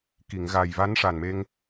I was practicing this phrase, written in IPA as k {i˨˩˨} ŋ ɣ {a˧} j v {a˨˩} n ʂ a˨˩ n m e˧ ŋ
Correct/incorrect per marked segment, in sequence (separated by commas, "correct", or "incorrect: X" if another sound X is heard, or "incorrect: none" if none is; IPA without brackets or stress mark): correct, incorrect: a˨˩, incorrect: a˧˥